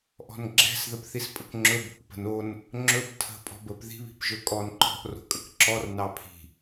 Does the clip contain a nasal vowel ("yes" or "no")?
no